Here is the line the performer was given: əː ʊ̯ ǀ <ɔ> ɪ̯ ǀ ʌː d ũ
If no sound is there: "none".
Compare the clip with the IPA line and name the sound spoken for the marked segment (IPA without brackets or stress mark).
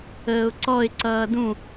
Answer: ɔ